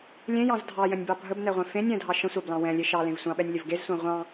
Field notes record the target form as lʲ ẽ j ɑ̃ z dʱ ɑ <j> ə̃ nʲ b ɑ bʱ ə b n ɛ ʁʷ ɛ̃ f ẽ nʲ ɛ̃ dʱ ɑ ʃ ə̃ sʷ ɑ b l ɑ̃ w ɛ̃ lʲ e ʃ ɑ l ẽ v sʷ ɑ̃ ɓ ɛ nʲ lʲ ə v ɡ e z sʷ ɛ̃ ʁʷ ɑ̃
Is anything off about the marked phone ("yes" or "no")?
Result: no